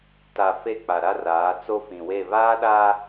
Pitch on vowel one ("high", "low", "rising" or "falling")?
low